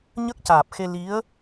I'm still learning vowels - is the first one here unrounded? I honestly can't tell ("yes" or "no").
yes